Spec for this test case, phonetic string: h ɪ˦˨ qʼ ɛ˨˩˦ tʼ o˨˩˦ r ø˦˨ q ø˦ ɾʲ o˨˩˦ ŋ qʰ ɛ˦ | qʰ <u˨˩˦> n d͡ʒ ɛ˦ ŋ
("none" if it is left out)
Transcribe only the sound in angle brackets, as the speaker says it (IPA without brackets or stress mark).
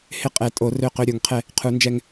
u˨˩˦